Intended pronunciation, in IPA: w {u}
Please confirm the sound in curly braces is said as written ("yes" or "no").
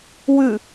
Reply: no